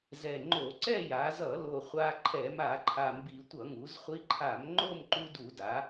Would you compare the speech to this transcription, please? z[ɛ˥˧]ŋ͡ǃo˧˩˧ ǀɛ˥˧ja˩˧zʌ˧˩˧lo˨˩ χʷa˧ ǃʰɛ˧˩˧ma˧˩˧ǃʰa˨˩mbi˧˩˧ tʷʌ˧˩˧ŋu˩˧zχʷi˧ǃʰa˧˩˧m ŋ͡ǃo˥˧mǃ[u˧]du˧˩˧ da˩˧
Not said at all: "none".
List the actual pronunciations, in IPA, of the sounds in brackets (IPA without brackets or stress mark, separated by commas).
ɛ˨˩, u˧